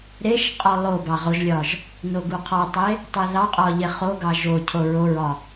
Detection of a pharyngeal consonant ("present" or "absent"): absent